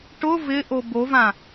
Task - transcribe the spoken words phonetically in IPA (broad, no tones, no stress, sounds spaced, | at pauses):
ʈ ʊ v ɪ ʔ o b o v ã